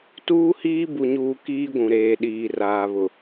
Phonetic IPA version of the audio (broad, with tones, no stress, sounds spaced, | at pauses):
t uː˦ h iː˦ b u˨ ɲ uː˨ k iː˦ ɡʷ ũ˨ ɾ eː˨ ɗ iː˨ r aː˨ β ʊ˨